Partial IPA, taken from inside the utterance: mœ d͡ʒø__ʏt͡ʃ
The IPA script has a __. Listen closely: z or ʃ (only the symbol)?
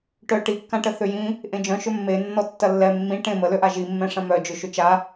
ʃ